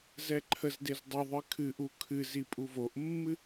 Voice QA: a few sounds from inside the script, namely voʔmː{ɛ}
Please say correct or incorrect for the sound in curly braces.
incorrect